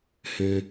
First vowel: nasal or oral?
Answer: nasal